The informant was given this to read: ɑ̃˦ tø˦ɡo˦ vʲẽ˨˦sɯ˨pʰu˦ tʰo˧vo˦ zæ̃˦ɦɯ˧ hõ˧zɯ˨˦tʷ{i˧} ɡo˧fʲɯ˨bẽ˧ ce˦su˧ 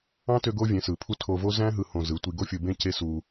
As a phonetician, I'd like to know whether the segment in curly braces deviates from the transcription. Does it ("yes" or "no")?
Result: no